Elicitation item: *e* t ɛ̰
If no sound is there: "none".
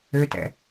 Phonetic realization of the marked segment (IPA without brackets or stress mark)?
ø